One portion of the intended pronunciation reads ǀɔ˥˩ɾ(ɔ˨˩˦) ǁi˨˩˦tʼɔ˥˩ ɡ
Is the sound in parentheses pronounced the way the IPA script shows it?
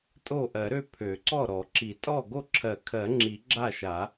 yes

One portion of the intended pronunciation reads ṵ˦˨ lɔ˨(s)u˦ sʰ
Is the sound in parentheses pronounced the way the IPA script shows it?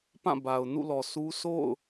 yes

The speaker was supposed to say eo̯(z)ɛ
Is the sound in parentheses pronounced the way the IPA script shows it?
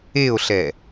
no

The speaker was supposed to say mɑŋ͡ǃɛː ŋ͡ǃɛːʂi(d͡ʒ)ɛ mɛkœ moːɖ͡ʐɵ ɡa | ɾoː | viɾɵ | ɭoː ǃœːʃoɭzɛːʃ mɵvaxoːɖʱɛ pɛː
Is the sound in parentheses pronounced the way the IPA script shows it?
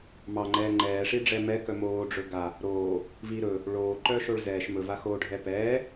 no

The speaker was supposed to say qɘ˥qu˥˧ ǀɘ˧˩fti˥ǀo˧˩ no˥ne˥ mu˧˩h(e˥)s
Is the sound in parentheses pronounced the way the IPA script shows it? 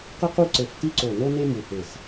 no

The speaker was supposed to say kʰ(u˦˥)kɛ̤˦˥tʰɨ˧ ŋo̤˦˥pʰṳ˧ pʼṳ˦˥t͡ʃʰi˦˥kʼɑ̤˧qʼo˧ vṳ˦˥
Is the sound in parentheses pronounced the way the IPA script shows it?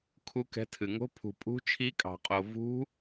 yes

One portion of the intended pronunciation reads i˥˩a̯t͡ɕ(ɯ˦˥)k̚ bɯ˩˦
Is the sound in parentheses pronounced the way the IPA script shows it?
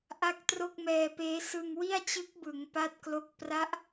yes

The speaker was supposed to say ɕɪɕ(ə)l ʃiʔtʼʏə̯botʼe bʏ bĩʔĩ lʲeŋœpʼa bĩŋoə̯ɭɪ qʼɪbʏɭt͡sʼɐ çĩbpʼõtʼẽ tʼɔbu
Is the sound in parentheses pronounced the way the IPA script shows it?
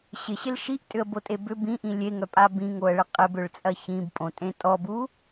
no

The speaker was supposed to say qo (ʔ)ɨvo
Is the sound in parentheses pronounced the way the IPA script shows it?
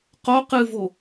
no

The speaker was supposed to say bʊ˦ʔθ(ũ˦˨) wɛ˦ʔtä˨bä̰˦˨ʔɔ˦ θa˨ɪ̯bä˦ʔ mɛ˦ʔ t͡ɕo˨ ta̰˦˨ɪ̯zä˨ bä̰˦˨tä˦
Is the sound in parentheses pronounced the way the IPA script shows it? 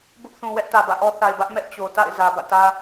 no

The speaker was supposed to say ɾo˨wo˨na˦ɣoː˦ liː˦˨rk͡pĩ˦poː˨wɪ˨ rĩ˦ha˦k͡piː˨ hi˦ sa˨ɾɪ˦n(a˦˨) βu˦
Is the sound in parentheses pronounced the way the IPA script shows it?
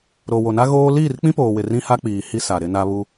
no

